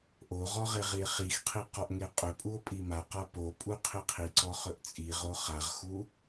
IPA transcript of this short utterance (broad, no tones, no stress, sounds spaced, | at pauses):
ʔ o ʁ ɔ ʁ e ʁ i e̯ χ i x qʰ i q ɔ ʔ ŋ e qʼ ɵ pʼ u o̯ pʼ i m a q a p o pʼ u qʰ i qʰ i ǀ ɔ χ ɵ ʔ t͡sʼ i ʁ o χ a ʁ x u